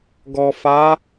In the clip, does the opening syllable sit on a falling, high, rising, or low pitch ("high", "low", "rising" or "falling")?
low